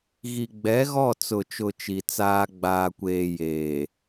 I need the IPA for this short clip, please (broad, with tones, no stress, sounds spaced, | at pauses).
ɣ i˨ ɡ͡b ɛ˨˦ ɣ ɔ˦˨ t͡s ʊ˨ t͡ʃ ʊ˨ t͡ʃ i˨ t͡s aː˦ ɡ͡b aː˨ kʷ eː˨ j eː˨